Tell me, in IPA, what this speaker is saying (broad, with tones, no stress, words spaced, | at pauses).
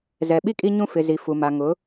zɛ˨ɓi˦ kʼi˦ɲũ˦ fɪ˨zi˨ fu˨ma˨ ŋʊ˨˦